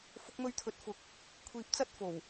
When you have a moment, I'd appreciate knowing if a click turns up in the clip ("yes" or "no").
no